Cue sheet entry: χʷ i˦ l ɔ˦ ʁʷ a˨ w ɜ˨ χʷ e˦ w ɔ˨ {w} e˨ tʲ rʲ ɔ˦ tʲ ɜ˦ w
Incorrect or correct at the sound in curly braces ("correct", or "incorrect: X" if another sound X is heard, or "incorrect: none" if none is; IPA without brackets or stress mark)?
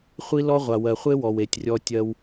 correct